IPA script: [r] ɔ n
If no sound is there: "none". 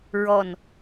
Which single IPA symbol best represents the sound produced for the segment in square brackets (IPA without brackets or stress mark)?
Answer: ɹ